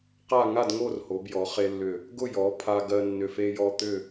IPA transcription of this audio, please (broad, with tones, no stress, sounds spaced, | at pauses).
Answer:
q a˥˧ ŋ a˥˧ d ŋ o˥˧ r h o˩˧ b j ɔ˩˧ χ e˧ lː ʏ˧˩ | ɡ ʊ˥˧ j ɔ˩˧ pʰ a˧ ɡ ɜ˧ nː ʏ˧˩ f e˧ j ɔ˧ t̪ ʏ˥˧